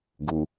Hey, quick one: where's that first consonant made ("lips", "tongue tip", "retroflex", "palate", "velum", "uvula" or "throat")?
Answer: velum